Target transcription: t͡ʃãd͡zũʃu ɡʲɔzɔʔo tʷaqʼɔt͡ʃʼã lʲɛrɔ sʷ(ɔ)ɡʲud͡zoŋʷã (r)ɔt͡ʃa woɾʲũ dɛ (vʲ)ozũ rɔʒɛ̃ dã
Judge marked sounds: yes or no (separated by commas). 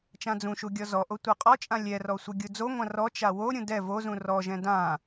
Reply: no, yes, no